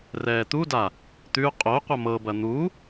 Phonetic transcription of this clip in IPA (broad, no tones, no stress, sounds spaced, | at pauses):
r ɛː t̪ u d a | t̪ ʉ qʼ o qʷ ɐ m ɤ b ɐ n̪ u